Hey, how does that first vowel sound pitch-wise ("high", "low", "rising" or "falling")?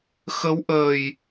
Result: rising